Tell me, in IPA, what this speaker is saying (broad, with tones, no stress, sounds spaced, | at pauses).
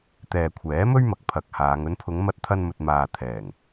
t̪ ɛː˨ kʷʰ ɛː˨˥ m ɵ˥ ɥ m ɐ˨ k̚ pʰ ɐ˨ k̚ h aː˨˧ ŋ ɵ˨˧ n pʰ ʊ˨˧ ŋ m ɐ˧ t̚ t̪ʰ ɐ˧ n m ɵ˨ t̚ m aː˨ t̪ʰ ɛː˨˩ ŋ